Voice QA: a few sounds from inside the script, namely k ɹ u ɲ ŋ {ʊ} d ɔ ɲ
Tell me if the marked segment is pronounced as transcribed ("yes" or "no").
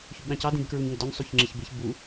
yes